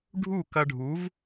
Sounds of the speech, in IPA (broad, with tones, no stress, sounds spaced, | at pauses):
ɖʱ u˦˨ k ɐ˧ ɖʱ u˨˦ v